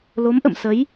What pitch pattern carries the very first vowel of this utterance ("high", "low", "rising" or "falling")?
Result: rising